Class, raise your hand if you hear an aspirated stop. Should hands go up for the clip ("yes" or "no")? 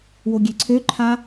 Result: yes